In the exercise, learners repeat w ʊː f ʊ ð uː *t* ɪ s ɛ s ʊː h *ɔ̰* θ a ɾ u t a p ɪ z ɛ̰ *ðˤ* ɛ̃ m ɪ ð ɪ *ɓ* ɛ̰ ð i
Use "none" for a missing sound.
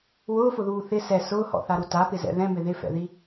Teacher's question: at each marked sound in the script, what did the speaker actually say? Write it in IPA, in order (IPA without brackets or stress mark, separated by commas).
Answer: θ, ɔ̰, ð, f